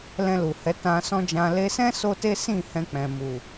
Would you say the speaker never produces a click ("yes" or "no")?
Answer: yes